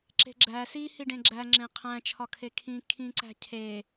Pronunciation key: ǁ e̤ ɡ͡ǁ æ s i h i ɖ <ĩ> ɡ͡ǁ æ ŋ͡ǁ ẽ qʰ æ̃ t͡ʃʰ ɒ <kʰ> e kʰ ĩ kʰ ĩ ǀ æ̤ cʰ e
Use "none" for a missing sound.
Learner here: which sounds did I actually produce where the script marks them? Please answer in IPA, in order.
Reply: ẽ, kʰ

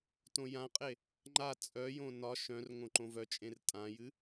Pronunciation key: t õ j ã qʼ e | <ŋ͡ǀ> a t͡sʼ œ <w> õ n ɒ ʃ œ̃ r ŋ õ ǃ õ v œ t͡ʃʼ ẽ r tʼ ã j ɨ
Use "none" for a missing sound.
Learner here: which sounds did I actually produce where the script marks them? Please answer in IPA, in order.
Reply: ŋ͡ǃ, j

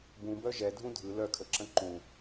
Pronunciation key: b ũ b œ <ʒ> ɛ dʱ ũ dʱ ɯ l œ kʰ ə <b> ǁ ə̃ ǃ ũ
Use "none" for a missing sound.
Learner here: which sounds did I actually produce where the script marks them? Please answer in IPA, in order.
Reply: ʒ, none

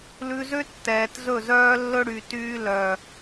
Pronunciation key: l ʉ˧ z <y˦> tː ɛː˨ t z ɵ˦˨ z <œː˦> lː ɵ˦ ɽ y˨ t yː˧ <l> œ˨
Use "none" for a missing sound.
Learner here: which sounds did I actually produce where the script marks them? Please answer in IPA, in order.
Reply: ø˦, œː˦, l

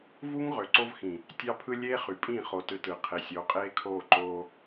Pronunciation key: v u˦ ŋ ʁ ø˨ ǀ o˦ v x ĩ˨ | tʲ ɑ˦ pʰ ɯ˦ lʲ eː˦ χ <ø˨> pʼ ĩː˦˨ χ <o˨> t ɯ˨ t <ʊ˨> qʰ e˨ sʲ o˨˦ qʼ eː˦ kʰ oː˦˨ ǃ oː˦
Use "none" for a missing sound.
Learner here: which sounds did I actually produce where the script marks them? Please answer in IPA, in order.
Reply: y˨, o˨, ɯ˨

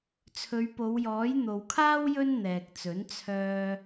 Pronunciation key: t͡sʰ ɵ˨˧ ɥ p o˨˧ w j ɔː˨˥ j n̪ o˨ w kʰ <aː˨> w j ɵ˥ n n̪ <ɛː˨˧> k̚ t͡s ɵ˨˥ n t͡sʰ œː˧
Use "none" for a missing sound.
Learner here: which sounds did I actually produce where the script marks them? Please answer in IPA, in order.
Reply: aː˥, ɛː˨

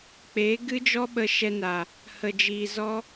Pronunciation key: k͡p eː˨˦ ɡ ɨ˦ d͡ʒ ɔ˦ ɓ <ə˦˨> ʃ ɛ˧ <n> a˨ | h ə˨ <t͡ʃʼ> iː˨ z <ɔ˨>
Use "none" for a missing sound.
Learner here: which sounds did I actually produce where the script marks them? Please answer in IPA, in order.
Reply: ə˧, n, d͡ʒ, ɔ˦

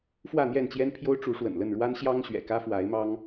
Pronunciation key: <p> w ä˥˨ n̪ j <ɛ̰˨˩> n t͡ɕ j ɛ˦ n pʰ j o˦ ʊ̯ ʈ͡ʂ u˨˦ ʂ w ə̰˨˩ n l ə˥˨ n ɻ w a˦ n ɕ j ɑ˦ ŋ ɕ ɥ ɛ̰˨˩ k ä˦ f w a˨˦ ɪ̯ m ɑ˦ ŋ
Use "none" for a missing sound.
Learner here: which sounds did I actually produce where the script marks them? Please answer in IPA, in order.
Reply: f, ɛ˥˨

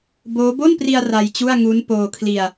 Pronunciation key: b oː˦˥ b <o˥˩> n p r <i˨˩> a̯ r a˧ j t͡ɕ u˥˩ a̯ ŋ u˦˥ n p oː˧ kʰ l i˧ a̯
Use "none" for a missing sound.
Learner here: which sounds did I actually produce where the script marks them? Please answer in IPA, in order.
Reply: o˥˩, i˧

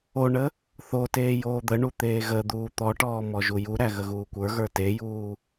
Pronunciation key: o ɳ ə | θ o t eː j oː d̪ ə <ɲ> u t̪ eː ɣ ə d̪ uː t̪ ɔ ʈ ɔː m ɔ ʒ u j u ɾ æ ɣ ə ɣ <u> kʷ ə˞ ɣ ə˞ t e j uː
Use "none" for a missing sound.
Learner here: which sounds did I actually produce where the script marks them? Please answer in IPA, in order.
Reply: ɳ, uː

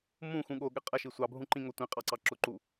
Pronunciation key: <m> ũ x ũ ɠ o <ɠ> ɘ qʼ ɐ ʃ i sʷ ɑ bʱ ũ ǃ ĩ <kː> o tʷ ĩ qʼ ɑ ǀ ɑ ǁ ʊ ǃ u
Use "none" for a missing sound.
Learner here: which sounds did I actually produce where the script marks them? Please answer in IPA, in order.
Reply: m, ɠ, ŋ

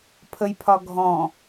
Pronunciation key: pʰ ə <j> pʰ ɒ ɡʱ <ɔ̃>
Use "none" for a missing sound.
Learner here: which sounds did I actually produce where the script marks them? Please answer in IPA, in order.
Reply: j, ɔ̃

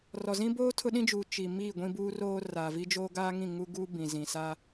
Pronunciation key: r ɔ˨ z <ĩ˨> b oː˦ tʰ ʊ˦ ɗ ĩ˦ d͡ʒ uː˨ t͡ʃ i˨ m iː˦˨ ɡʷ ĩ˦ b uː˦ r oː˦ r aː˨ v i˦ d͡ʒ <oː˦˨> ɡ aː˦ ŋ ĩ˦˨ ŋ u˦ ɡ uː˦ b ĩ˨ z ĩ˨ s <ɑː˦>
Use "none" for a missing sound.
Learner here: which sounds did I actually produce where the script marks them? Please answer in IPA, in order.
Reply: ĩ˦, oː˦, aː˦

